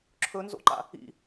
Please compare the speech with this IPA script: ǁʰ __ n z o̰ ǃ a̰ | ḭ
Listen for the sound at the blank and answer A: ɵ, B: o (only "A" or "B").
A